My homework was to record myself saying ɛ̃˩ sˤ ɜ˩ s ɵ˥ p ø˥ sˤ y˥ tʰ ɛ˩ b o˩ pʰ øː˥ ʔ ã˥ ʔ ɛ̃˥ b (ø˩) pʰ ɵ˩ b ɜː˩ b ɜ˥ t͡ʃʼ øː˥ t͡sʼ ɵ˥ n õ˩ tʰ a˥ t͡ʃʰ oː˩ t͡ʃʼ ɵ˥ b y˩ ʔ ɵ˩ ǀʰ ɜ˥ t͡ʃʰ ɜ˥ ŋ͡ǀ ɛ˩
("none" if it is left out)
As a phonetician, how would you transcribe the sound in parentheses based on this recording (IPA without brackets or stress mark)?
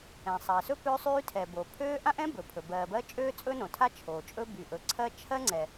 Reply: ɵ˩